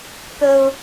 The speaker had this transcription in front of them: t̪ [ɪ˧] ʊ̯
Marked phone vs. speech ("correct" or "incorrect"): incorrect